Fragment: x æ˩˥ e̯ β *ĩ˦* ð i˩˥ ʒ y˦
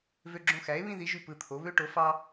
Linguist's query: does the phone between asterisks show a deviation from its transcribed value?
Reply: no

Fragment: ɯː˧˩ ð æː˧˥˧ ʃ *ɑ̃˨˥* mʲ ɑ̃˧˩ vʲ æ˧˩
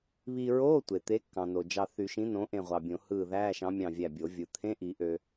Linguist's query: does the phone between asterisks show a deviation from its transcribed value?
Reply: no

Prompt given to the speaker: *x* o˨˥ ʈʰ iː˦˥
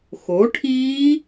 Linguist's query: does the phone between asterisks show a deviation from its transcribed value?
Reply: no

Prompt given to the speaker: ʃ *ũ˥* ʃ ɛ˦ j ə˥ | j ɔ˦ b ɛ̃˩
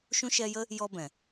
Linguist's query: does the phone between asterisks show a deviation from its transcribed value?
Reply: no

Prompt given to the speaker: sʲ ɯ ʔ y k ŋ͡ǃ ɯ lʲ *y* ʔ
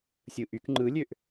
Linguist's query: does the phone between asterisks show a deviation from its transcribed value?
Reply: yes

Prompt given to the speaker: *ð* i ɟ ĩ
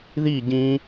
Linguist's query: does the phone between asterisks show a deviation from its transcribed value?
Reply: no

